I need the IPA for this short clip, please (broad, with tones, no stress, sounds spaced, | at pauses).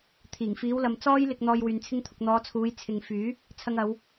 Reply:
t̪ʰ iː˨˩ ŋ f iː˨˧ w l ɐ˨ m t͡s ɔː˥ j l ɪ˧ k̚ n̪ ɔː˧ j w yː˨ n t͡sʰ ɪ˥ ŋ t̪ʰ ʊ˧ k̚ n̪ ɔː˨˧ t͡sʰ uː˨˧ j t͡sʰ ɪ˨ ŋ f yː˨˥ | t͡sʰ ɐ˧ ŋ ɐ˨˧ w